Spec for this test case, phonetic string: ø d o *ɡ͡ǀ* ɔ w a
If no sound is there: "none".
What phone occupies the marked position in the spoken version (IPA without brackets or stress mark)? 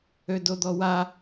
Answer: d̪